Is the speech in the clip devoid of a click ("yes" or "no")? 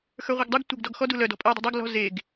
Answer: yes